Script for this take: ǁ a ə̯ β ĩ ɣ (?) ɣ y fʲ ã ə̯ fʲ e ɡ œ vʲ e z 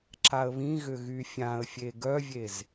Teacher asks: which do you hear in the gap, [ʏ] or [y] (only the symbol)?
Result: ʏ